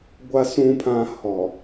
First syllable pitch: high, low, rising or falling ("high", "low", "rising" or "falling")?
low